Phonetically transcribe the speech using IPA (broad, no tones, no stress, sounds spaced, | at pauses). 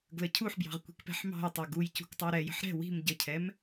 ɡ l ə cʰ u ħ b j ɑ̤ ʁ kʷ i̤ k p ɛ̤ ħ m ɑ̤ j tˤ ɛ ɡ u j c ṳ k tˤ ɜ ɾ ɛ j ə̤ ħ ɾ ɛ̤ w i̤ m ɟ ə cʰ ɛ m